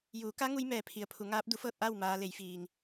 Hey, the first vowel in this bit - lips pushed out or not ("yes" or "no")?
yes